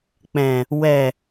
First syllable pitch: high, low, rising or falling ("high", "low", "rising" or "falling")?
low